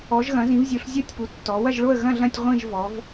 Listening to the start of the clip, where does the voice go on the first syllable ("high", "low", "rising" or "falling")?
rising